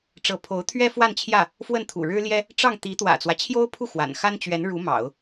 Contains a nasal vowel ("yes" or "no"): no